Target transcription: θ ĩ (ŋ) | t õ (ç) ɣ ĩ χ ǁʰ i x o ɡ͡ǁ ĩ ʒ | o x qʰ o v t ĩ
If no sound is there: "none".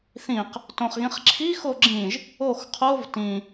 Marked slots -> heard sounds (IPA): q, χ

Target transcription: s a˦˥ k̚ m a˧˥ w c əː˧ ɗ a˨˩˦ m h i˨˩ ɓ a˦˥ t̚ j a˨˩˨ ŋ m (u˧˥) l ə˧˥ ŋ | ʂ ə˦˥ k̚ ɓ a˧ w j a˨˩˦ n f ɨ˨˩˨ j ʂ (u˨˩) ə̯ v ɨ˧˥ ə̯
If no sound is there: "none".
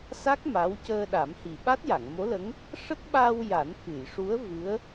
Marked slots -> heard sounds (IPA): o˧˥, u˧˥

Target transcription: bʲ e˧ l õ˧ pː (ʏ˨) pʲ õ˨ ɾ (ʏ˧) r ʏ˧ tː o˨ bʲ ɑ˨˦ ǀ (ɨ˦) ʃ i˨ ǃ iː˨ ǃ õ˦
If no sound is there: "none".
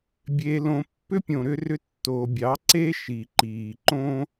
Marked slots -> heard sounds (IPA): ʏ˦, ʏ˧, e˦

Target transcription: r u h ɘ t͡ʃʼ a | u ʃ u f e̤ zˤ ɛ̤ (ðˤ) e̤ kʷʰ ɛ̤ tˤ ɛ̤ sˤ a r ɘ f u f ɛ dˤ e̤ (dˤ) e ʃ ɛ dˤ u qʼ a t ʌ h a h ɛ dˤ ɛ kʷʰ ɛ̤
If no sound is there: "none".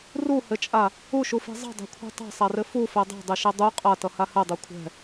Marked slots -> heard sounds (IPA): dˤ, dˤ

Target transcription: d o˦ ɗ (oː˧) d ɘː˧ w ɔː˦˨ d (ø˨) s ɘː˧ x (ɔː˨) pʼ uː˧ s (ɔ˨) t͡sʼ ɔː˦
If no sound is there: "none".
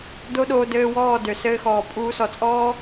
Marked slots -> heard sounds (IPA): oː˧, ø˨, ɔː˨, ɔ˨

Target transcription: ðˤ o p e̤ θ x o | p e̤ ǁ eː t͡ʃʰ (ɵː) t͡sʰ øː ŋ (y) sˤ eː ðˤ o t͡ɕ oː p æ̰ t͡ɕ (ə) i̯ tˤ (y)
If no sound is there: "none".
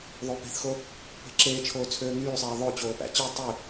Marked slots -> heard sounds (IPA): oː, yː, ɯ, y

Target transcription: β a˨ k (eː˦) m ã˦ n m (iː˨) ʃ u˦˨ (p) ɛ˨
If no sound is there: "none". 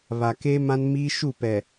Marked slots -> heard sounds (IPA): eː˦, iː˦, p

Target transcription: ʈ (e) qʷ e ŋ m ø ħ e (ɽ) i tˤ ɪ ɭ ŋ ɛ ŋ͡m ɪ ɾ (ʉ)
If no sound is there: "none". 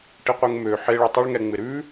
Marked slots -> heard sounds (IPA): i, ɭ, ʉ

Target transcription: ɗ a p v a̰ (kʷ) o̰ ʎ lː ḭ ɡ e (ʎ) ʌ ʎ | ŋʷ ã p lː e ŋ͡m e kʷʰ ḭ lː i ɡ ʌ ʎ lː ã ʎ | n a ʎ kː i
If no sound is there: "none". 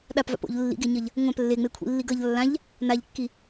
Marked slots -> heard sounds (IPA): p, ɲ

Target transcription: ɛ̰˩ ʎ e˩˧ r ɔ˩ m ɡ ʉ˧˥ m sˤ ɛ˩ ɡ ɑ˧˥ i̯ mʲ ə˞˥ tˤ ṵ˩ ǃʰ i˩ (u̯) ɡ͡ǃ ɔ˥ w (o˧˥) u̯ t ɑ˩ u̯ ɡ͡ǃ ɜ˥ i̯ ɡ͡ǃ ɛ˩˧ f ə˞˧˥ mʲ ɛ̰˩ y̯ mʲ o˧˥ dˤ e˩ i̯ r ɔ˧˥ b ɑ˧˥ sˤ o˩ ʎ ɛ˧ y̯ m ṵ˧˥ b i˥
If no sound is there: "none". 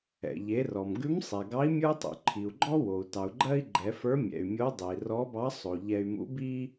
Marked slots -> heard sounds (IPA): u̯, o˩

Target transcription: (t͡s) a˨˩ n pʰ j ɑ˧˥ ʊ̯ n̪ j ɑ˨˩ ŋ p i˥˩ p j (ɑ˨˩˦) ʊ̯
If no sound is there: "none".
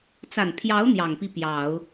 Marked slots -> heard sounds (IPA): t͡s, ɑ˨˩˦

